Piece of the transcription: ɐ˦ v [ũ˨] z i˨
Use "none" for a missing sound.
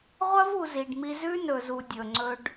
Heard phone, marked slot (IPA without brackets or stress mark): u˨